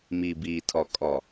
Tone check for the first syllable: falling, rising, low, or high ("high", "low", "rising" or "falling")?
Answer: low